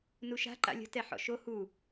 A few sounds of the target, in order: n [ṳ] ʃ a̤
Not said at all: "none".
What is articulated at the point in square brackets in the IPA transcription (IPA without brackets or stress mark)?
u